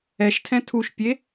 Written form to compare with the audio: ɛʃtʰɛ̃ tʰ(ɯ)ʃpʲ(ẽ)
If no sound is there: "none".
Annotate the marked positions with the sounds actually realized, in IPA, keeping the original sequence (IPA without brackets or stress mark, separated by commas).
u, e